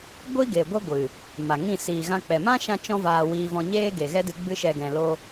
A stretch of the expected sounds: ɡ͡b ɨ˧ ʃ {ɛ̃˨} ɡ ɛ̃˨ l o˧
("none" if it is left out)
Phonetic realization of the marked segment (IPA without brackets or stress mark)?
ɛ˨